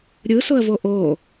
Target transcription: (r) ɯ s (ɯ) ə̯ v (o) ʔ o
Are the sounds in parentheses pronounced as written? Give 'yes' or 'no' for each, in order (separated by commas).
no, no, yes